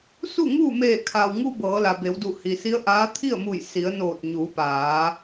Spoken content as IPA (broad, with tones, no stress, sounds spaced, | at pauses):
s u˥˨ ŋ uː˥˨ m eː˧˩ kʰ a˩ w ŋ u˧ b ɤː˩˧ l a˩ b e˩˧ w d u˧˩ h i˩ s i˧˥ ə̯ ʔ aː˧˥ t̪ʰ i˥˨ ə̯ m u˧˩ j s i˩˧ ə̯ n oː˧˩ t̚ ɲ uː˩˧ p aː˩˧